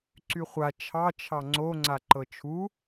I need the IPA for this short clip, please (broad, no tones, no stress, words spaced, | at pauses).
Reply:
ǀyχʷa t͡ʃʰɑ t͡ʃʰɑŋ͡ǀo ŋ͡ǀaǃɤt͡ʃʰu